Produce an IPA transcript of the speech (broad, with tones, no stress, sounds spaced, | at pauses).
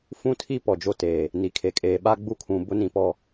f ũ˦ tʰ i˦ p ɔ˨ d͡ʒ o˦ t eː˨ | n i˨ kʰ e˨ kʼ eː˨ ɓ a˦ ɡ͡b u˦ kʰ ũ˨ b ʊ˦ n ĩ˨ p ɔ˦˨